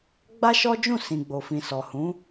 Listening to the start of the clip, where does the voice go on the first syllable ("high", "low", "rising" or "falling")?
high